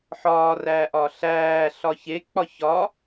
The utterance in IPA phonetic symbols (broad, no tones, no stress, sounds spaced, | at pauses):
ħ ɒː r æː ʔ ɒ ɬ æː ɬ ɒ ç e k͡p ɒ ç ɒ